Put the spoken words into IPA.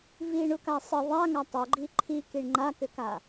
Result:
v i ɳ u k a sˤ ə ðˤ a ŋ a tˤ ʏ ɡ͡ǃ i ǃʰ i k i ɳ ŋ͡ǃ a k ʏ k a

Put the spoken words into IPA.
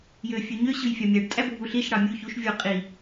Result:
j ø fʲ ø ɲ ø ɕ ɯ j fʲ ɑ mʲ æ ɖ tʼ æ bʱ u ɬ i ʃ ɽ ɑ mʲ u ç u ʃ vʲ o qʼ i

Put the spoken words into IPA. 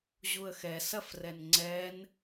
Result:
ʑ u ə̯ x ɛ s ɐ f r ɛ n ŋ͡ǀ ɛ n

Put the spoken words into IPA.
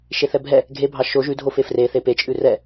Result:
ʃ e θ ɛ bʱ ɛ | ɡʱ e bʱ ɑ ʃ o ʒ ʉ dʱ o f e f r e θ e p e t͡ʃʼ ʉ r ɛ

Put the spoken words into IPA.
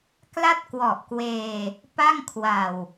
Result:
k l a˥˩ t̚ k w ɔ˨˩ ʔ k w eː˧ | p a˥˩ ŋ kʰ w a˨˩ w

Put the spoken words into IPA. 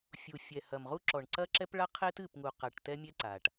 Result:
fʲ u˨ fʲ ɛ˨ h ɐ˨ m ʁ u˦ ǁ ɔ˨ ɳ ǀ ɐ˦ ǁ ɛ˦ p ɭ a˦ qʰ e˦ t ɨ˦˨ p ŋ u˨ q a˨ ʈ t ɛ˦ mʲ ɛ˦ ǀ a˨ ʈ

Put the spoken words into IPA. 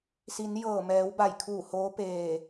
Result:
s i˩˧ n j ɤː˧˩ m ɛː˩˧ w b a˧˩ j kʰ uː˧˩ h oː˧˥ p eː˧˩

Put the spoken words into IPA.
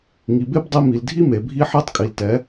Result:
ŋ i˨ b e˦ b dˤ i˧ m i˨ l dʱ i˦ m e˨ bʱ i˦ ħ e˦ tˤ kʼ i˨ l t ɛ˨˦

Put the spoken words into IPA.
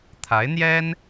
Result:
t̪ʰ a˧˥ ɪ̯ n̪ j ɛ˥ n

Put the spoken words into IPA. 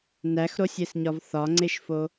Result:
n æ x ɾ o sʲ e s ɲ ɒ v θ ɒ ŋ͡ǀ e ʃ f o

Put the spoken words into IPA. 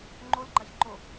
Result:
ŋ͡ǃ o l ɡ͡ǃ a ç ǃ o

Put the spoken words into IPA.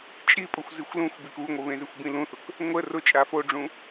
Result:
t͡ʃʼ i pʼ ʊ xʷ z i xʷ l ũ xʷ b i k u ŋʷ ə β ẽ z e xʷ b ĩ l ũ θ ʊ k | ŋʷ ə r ʊ t͡ʃʼ a f o ɖ͡ʐ ũ

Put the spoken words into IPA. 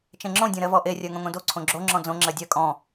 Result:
t͡ʃ ẽ ŋ͡ǁ õ dʲ õ ɾ ɜ v ɔ ʔ e rʲ ɜ ŋ õ ŋ õ d o ǀʰ õ ɡ͡ǁ o ŋ͡ǁ ɔ̃ d͡z õ ŋ͡ǁ ɜ dʲ ɜ kʼ ɔ̃

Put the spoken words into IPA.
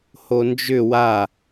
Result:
h o n d͡ʒ ʏ w a

